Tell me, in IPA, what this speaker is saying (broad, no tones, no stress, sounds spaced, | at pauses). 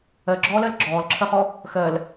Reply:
ɜ ɡ͡ǁ ɔː l ɜ l ɡ͡ǁ ɔː l ǁʰ ɜ χ ɔ | x ɜ l